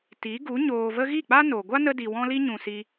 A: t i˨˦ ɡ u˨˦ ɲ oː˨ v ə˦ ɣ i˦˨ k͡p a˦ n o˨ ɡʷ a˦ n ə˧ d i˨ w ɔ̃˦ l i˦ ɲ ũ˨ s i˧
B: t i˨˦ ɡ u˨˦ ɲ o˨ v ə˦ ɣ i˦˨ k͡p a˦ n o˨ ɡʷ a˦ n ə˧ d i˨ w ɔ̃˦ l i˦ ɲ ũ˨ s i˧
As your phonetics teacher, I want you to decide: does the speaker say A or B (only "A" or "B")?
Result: A